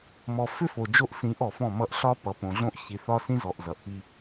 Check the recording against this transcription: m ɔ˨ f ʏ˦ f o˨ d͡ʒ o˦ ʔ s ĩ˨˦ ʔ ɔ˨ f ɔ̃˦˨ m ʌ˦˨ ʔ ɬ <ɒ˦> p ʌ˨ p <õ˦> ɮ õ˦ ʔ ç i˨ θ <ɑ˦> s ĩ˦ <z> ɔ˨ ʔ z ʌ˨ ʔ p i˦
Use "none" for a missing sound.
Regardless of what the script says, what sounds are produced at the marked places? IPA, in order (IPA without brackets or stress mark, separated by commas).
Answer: ɒ˦, õ˨, ɒ˦, z